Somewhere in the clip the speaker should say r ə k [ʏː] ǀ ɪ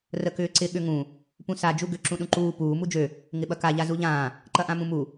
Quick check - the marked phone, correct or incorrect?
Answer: correct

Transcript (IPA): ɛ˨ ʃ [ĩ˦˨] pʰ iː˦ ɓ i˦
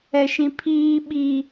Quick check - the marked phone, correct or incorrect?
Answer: incorrect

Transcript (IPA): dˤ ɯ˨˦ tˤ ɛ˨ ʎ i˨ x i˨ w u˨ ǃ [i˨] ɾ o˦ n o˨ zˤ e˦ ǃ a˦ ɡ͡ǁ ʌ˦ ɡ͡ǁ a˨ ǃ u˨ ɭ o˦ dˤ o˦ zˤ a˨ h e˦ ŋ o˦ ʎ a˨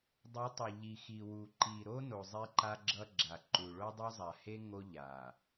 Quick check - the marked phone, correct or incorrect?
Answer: correct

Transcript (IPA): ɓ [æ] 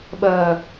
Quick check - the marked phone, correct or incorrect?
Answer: incorrect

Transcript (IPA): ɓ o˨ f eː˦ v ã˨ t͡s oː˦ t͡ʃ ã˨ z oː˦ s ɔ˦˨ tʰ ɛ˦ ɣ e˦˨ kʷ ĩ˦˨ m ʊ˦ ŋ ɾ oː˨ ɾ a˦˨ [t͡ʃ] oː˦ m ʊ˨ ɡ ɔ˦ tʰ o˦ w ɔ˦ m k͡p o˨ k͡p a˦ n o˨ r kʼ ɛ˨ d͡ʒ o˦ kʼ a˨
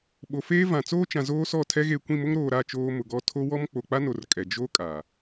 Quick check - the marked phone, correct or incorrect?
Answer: correct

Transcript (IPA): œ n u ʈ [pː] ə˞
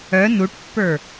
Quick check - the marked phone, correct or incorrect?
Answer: correct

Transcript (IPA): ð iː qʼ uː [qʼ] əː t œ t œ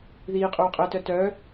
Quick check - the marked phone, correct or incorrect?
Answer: correct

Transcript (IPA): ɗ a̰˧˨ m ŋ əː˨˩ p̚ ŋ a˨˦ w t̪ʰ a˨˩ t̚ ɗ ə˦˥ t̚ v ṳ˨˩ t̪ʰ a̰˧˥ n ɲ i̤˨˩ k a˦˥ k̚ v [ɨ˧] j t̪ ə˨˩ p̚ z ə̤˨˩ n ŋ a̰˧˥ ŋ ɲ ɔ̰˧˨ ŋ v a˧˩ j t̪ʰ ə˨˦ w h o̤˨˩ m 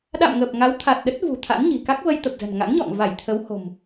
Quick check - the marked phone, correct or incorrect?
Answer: incorrect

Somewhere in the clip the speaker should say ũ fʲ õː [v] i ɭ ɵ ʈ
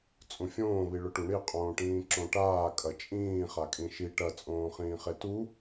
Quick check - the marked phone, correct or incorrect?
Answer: incorrect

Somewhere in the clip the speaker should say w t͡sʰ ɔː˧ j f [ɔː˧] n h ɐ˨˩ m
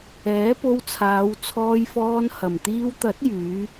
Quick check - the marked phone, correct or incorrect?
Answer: correct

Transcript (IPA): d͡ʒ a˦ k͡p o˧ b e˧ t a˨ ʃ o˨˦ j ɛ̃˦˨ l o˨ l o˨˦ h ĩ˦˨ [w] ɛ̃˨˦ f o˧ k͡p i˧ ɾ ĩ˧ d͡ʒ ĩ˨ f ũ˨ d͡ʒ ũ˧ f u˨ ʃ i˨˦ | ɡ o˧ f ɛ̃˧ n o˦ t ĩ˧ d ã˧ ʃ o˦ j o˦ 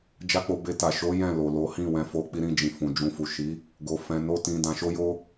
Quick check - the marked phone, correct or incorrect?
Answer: correct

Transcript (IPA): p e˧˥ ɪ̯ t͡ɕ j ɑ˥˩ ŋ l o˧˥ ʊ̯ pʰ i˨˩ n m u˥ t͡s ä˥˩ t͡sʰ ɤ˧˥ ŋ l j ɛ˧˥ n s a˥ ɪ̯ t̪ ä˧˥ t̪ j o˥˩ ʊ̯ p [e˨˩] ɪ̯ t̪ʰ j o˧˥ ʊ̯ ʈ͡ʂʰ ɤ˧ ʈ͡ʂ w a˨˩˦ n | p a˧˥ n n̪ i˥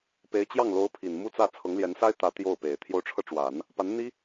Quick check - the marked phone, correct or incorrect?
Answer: correct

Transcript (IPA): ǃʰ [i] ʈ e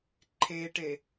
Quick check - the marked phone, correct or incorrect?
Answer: incorrect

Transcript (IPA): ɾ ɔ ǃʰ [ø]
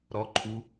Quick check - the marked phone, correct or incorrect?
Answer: incorrect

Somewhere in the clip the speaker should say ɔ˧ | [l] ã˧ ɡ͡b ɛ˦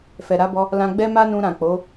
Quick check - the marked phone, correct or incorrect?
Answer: correct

